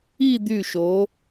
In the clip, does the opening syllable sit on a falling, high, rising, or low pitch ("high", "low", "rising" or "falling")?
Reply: falling